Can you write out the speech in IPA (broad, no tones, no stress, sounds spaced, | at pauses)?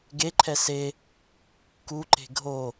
ɡ e ǃʰ ɛ s e | k u ǃ e̤ ɡʱ o